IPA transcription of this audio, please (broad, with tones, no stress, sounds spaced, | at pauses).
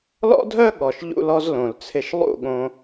l ɔ̰˦ dʱ œ˦ ɠ ɔ˨ ʃ ʎ ṵ˧ l ɔ˧ z l õ˨ l t͡sʰ ɪ˧ ʃ lˠ ṵ˦˨ ɠ õ˧